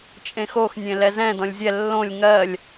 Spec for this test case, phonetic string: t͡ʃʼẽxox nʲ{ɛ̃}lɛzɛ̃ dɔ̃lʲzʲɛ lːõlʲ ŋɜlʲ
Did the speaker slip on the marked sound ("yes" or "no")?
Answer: yes